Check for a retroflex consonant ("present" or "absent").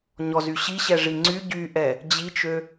present